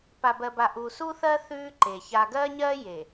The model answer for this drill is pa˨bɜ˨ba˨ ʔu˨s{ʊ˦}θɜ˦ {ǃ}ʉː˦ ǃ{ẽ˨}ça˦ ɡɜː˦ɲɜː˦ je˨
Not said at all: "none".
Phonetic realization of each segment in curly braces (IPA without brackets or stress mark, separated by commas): u˦, θ, e˨